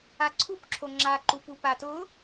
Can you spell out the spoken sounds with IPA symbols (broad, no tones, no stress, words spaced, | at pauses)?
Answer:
aǀʰupǁʰo ŋ͡ǁaǃupu patʊ